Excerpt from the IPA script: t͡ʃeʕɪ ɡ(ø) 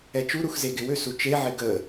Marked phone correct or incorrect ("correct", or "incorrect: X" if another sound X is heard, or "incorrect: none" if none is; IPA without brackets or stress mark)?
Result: incorrect: ə